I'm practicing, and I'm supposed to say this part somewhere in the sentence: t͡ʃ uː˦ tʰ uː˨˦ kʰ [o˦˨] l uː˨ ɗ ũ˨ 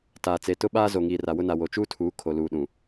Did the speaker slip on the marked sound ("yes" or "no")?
yes